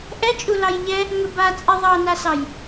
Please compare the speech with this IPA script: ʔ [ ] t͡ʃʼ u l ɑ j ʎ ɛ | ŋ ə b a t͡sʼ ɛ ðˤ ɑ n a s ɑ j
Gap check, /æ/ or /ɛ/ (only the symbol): ɛ